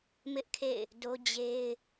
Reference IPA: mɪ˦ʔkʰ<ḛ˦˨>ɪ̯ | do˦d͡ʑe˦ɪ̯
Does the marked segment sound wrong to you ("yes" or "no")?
no